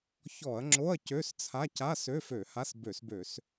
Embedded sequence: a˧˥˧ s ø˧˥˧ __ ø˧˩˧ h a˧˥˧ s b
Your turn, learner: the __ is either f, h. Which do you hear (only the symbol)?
f